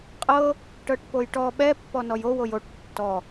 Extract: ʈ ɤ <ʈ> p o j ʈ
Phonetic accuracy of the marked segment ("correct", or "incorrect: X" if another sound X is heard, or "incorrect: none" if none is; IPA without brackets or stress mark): correct